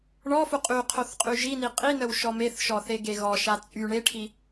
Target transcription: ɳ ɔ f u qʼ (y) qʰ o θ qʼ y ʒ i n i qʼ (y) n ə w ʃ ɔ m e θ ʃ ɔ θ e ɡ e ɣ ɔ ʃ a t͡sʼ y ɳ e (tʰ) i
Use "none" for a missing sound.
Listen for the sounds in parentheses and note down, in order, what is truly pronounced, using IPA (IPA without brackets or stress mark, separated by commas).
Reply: y, i, ʈʰ